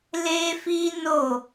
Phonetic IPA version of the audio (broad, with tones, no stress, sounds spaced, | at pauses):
l e˦ f i˦ n o˦˨